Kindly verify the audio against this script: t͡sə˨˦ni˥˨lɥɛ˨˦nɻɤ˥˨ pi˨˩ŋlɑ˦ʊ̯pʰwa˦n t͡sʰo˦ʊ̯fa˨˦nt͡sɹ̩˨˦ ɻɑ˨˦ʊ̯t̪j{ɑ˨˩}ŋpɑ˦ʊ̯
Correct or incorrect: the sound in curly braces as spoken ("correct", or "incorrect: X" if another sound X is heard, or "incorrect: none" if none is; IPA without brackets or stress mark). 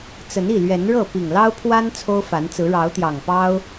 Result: correct